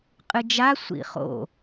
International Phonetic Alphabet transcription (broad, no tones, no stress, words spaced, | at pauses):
qʼɨd͡ʒa sʷḭχo̰